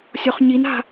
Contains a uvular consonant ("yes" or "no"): yes